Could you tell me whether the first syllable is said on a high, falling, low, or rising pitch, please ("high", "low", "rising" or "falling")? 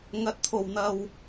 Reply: rising